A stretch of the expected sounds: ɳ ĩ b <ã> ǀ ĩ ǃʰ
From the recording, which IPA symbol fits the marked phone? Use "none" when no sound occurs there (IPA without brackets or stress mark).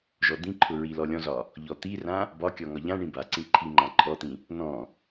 a